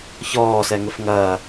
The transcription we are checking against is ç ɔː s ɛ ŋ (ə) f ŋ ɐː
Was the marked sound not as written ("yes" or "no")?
no